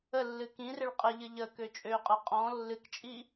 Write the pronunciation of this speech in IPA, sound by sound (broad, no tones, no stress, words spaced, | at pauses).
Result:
əlːɨ kĩrɪɭ qʼɪʎɨ ʎəkø t͡ʃʼø qʼə qʼɔ̃ lːɨkt͡ʃʼi